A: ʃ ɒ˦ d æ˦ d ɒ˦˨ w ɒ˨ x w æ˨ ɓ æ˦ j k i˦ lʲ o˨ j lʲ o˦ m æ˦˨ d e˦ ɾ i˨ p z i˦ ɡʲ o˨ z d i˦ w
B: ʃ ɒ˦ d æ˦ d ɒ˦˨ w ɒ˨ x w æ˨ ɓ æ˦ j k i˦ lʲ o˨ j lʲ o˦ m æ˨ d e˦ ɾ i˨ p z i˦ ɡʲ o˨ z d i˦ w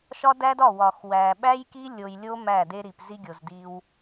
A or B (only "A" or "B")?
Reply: A